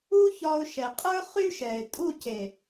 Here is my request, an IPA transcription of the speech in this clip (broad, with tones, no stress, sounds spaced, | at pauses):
u˦ ç ɒ˧ ʊ̯ ʃ ɛ˨ qʼ ə˞˦ χ y˦ ʃ ɛ˨ ɪ̯ tʼ u˦˨ cʰ e˨